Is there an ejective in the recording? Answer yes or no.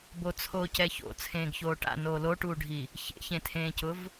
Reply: no